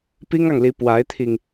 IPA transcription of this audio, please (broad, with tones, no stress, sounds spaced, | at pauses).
p i˥ ŋ ɑ˨ ŋ l i˧˥ p w a˧˥ ɪ̯ t̪ʰ i˧ ŋ